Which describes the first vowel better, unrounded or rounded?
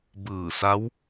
unrounded